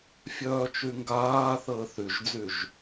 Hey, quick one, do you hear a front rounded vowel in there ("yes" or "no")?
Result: yes